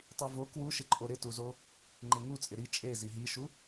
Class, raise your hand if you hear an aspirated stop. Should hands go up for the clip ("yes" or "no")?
no